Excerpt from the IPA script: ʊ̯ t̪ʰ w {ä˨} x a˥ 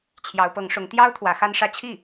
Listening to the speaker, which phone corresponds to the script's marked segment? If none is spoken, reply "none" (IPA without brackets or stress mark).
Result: ä˧˥